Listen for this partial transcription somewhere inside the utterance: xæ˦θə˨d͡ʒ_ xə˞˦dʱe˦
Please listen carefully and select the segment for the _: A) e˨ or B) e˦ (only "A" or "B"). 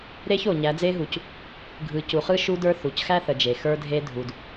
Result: A